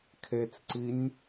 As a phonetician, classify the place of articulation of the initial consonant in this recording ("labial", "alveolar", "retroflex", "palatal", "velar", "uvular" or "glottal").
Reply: velar